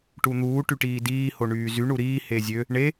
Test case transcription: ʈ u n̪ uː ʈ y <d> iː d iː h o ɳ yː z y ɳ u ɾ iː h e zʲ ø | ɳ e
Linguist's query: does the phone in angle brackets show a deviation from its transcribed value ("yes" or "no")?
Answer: yes